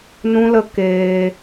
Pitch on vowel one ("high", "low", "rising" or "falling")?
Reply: high